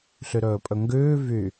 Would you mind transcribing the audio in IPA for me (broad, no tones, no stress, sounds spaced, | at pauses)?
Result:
ɬ y ɾ ɵː pʼ ɵ ŋ ɡ ʉː v y